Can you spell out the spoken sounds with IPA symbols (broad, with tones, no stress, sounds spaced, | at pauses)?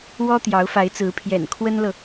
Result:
w ɔ˥ t̪ j ɑ˧˥ ʊ̯ f a˧˥ ɪ̯ t͡s ɹ̩˧˥ pʰ j ɛ̰˨˩ n kʰ w ə˥ n l ɤ˨